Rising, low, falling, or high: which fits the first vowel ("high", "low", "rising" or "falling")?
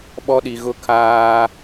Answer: high